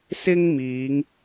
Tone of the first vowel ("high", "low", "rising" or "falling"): high